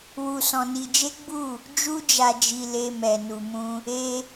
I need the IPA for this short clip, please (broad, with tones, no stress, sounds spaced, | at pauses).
w u˧ s ɔ̃˧ n i˧ d͡ʒ e˦ ɡ͡b u˦˨ | d͡ʒ u˦ d͡ʒ a˧ d͡ʒ i˧ l e˧ m ɛ˨ n u˨ m ũ˧ | e˧